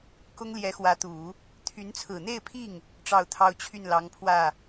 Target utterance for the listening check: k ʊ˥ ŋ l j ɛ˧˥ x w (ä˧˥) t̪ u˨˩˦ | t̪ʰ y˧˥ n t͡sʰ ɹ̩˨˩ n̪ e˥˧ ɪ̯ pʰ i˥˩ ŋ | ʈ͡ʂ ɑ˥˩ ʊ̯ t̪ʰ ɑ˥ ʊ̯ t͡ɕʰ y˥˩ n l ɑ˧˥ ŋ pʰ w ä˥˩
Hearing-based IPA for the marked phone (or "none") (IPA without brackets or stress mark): ä˧˥